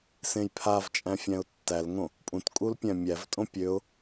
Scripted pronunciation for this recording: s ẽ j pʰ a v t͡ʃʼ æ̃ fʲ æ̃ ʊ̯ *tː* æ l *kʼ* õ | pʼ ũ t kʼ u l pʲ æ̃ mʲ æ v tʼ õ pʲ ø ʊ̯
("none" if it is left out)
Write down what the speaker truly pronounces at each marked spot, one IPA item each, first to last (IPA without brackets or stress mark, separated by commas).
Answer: tː, ŋ